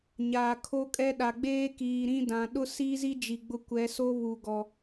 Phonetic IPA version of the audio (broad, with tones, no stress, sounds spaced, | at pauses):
ɲ aː˨ kʰ o˦ kʼ ɛ˦ ɗ a˨ ɡ͡b eː˦ k iː˨ ɾ ĩ˦ d ã˨ ɗ ʊ˦ s iː˦ z i˦ d͡ʒ i˨ ɡ͡b ʊ˦˨ kʷ ɛ˨˦ s o˦ β u˨ ɡ ɔ˨